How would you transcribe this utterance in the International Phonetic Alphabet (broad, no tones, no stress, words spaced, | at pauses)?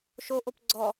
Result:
ʃo ʔopɡ͡ǀɔ